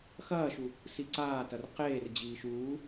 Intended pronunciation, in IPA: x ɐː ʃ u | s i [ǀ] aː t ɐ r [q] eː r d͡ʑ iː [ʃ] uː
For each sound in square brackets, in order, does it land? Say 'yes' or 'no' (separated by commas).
yes, yes, yes